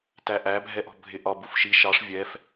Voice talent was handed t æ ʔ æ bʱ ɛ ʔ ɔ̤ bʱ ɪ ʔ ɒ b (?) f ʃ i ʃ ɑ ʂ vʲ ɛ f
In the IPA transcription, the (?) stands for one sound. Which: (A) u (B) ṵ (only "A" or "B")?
A